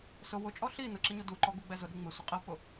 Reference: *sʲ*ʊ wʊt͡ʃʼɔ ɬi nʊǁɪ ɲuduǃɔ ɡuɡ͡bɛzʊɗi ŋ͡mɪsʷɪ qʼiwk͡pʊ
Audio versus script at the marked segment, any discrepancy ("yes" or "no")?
yes